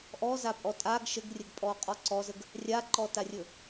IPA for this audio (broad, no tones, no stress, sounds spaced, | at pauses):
ʔ ɔ z a pʼ ɔ tʼ a ɡ ʃ ə ɡ rʲ ə ɡ pʼ ɔ qʼ ɔ ǀ ɔ z ə ɡ | rʲ a ǃ ɔ t a rʲ ɵ